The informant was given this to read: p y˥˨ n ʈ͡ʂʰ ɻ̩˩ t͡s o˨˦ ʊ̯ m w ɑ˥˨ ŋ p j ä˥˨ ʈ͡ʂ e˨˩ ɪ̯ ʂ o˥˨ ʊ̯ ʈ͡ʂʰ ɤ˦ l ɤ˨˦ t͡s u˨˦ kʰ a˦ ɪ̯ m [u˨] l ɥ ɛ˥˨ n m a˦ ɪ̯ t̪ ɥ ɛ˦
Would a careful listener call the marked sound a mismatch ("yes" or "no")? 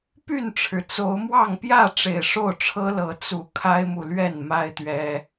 no